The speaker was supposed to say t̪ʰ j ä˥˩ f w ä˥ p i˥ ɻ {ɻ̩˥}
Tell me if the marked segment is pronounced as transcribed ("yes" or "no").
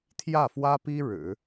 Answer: no